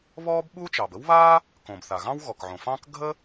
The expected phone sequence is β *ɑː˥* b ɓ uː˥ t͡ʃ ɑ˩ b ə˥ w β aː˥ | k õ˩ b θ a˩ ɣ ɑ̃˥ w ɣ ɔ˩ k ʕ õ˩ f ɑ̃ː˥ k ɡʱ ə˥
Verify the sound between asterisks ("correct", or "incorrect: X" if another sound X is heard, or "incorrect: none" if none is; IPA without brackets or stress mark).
incorrect: ɔː˥